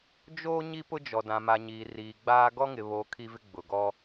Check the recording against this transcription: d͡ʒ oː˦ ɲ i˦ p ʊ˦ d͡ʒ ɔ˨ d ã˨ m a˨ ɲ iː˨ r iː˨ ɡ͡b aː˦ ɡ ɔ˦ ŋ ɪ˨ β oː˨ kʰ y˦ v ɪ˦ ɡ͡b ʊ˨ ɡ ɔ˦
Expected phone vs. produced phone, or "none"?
y˦ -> i˦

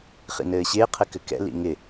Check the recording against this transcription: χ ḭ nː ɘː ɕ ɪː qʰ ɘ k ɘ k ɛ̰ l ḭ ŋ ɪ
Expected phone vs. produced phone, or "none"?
nː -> n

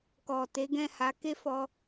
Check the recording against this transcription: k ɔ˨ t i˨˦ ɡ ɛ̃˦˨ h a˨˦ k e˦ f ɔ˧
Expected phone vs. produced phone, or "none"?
i˨˦ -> e˨˦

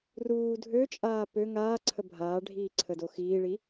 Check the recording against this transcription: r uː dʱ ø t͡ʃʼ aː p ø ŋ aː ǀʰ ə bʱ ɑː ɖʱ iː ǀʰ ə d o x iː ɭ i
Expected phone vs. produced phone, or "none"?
ɑː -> aː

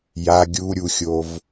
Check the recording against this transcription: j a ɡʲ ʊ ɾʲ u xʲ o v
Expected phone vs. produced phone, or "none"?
ʊ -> u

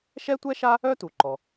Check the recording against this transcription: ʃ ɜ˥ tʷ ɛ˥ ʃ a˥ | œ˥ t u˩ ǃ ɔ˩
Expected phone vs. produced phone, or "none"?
ɜ˥ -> ɛ˥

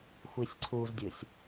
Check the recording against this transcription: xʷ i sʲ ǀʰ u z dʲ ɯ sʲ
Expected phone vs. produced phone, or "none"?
none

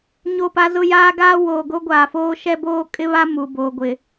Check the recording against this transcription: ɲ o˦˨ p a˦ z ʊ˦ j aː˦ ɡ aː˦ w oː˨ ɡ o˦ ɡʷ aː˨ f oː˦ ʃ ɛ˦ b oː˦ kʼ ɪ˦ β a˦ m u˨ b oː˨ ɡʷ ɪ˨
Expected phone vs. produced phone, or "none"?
none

